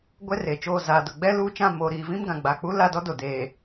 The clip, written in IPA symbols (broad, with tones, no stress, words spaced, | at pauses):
ɡʷɛ˦re˨t͡ʃoː˦˨ zaː˨dʊ˨ɡ͡bɛ˦ luː˦ t͡ʃã˦˨moː˨ɾiː˨ vĩ˦mɡã˨ɡ͡ba˨ k͡pu˦la˦˨dɔ˦ do˨ deː˨